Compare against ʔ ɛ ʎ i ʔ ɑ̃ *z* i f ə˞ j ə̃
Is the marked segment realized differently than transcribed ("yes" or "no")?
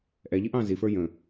no